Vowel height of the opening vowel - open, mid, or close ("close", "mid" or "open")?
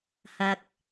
open